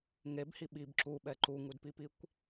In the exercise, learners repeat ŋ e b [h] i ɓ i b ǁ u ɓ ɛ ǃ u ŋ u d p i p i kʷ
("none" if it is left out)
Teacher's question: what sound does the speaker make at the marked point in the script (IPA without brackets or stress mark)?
h